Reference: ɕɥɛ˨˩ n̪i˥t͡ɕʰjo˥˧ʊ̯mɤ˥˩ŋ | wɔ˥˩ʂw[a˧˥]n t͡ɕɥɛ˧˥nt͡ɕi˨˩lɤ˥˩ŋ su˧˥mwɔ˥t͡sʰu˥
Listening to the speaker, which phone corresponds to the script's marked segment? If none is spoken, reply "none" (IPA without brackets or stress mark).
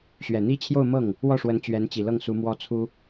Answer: ə˧˥